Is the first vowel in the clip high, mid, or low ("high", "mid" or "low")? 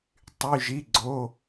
high